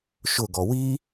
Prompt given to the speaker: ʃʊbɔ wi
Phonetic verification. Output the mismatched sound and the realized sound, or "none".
b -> ɡ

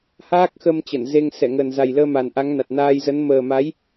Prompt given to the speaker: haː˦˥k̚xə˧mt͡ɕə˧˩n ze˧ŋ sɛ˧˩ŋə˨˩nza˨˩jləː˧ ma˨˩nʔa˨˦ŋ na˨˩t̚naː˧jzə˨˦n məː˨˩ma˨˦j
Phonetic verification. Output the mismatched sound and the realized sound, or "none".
none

